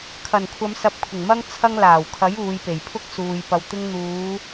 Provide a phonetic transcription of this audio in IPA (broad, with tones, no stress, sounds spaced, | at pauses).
kʰ ɐ˨˩ n kʷʰ ɐ˨˧ m s ɐ˨˥ p̚ kʷʰ ɪ˨˩ ŋ m ɐ˥ ŋ t͡sʰ ɐ˧ ŋ l aː˨˩ w kʰ ɐ˨˥ j uː˨˧ j p e˨˩ j pʰ ʊ˥ k̚ s uː˨ j p ɐ˨ w t̪ ɪ˧ ŋ n̪ uː˨˧